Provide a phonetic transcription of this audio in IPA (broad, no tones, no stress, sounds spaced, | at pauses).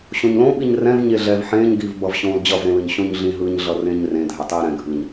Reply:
ɕ õ ɲ l õ ɓ i ɲ r ɛ̃ v ɲ e ɮ ɛ v ħ ẽː ɲ ɡ iː v b ʌ v ɕ õː l d͡ʑ ʌ v ɾ ẽ l ɯ ɲ ɕ õ ɲ ɮ ĩ ɦ ɯː ɲ ɮ ʌ r ẽː ɲ r ẽ dʱ ɛ tˤ iː ɾ ɛ̃ ɡʱ ɯː ɲ